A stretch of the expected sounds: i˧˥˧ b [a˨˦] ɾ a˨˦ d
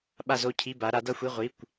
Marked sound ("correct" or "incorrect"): correct